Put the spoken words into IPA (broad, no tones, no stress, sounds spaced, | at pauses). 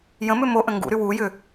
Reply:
j ə̃ m ʏ m o ʔ ə̃ ŋ ɡ ṵ ɾ y w u j ʏ